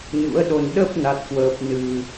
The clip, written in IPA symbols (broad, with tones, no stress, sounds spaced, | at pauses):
ɲ ṵ˧˥ ə̯ ɗ o˧ n ɗ ə˦˥ p̚ n a˦˥ t̚ k w əː˦˥ p̚ n ɨ˧